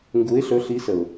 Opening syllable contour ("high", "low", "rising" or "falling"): rising